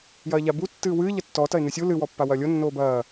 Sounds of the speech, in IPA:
jɐːʎabu tːɨːwɨː ʎɐtːɔ tɐe̯nɨsʲu lɨ wɔpːawɐːlʲo nːoːbɐː

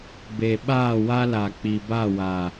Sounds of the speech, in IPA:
be˨ɓaː˦˨wa˦la˨ k͡pi˨ba˦˨wa˨

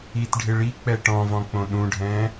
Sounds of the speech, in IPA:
itɖʱɪ ɭik͡pɛ ʈɔ̃vɔ̃ k͡põɗũɖʱɛ̃ː

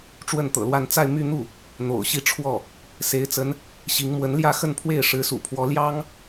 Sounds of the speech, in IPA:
ʈ͡ʂwə˥˩nt̪ɤ̰˨˩lwa˥˧n t͡sa˥˧ɪ̯my˥˧n̪u˥˩ | n̪o̰˨˩ʊ̯ɕi˥˧ʈ͡ʂʰwɔ˥˩ | se˧˥ɪ̯t͡sə˧˥n | ɕi˧˥ŋ mwə˧˥nljä˥˧xə˥˧npʰwe˥˩ɪ̯ ʂɻ̩˧˥sṵ˨˩pʰwɔ˧˥ ljɑ˥ŋ

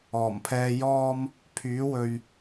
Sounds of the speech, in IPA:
ɔː˨˩mpʰɛː˨jɔː˧m | pʰyː˨˥wɵ˨ɥ

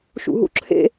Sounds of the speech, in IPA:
ʃṵɦṵǁʰḛ

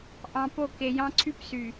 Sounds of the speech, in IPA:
ʔɑ̃˨ po˦˨ ke˨jɑ̃˦ǀʰy˦psy˨

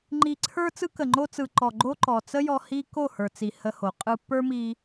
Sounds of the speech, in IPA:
ŋ͡ǃi˧ǀʰə˞˦ t͡sɯ˧kə˨ŋ͡ǃo˧t͡sɯ˨ ǃɔ˨ɡ͡ǃo˧ ǃɔ˨t͡sə˦jɔ˧ hi˦ ko˦˨hə˞˨t͡si˨ hə˧ho˨ qʼɯ˧pːə˞˦mi˧

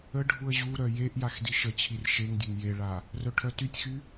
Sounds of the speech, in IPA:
əɖʱuə̯ ʑuɾœ jeʔ jaxdiʃət͡ɕʰir ʃeŋdʲəŋ jeɭa | rœʈʰœtytʲxy

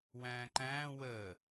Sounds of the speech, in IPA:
wæ̃ːǃæ̃ː wəː

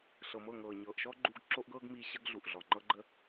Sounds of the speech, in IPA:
ɬɤ˨mɤ˦˨ŋɤː˨ ɲɤː˨ʔʃɔ˦ɡ͡ǃuː˧ɡ ǁo˦ʔɡɤː˦ɡmiː˧ ɕə˦ɡɮu˨ʔ ɮɔ˨ŋ͡ǃɤ˦ ɡ͡ǃə˦

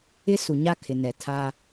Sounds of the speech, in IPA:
ɪ˦ su˨ɲa˦kʰɪ˨nɛ˨ tʰa˦

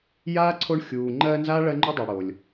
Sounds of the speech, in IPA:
jaː˥ǀʰo˦ɳxʲuː˨ ŋ͡ǃɜː˦nzaː˥ ɭɜ˥ŋ͡ǃu˥dˤa˨ ɽo˩lʲ

